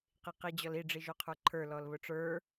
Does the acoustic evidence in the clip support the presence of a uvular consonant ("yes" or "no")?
yes